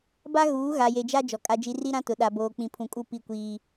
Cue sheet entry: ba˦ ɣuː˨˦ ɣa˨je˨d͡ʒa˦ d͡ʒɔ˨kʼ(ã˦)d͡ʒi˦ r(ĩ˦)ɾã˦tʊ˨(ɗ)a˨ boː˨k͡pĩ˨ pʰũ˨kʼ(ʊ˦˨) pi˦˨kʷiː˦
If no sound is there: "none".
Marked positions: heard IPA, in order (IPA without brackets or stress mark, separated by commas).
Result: a˦, i˦, ɗ, u˦˨